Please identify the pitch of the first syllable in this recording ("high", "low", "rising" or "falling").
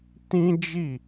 high